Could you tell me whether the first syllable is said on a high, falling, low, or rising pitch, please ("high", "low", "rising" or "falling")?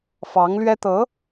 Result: rising